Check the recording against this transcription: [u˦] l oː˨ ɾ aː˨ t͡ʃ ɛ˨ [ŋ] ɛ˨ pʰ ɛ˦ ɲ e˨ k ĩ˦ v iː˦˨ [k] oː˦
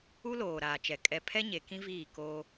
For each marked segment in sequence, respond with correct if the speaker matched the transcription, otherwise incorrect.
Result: correct, incorrect, correct

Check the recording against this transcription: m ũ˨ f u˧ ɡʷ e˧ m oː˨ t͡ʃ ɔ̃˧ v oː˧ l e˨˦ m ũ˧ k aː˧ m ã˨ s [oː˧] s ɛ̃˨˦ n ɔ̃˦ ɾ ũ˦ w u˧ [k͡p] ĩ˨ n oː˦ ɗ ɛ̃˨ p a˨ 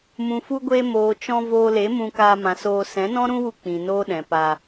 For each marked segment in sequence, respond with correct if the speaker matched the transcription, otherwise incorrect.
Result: correct, correct

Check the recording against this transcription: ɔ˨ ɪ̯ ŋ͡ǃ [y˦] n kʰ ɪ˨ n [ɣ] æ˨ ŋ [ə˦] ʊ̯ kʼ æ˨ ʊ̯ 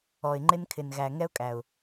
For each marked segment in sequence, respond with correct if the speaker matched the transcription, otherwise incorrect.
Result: incorrect, correct, incorrect

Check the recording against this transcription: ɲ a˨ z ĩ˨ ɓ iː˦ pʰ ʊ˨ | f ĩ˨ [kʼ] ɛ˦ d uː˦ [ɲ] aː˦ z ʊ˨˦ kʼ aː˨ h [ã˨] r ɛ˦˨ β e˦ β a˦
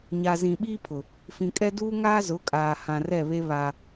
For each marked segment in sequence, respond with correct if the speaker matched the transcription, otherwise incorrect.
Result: correct, incorrect, correct

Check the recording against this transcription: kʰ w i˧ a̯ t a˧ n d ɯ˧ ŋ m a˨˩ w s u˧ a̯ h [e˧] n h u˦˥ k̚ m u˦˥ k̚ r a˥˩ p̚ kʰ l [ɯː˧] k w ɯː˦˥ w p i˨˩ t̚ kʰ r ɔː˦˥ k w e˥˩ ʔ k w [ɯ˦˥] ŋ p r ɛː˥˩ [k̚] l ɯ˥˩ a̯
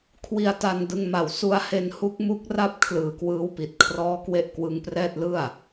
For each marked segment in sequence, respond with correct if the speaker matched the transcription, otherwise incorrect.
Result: correct, incorrect, correct, incorrect

